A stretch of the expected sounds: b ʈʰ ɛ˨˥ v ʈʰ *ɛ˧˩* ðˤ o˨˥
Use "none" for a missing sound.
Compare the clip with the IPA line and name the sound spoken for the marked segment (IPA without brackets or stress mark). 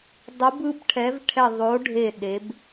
ɛ˧˩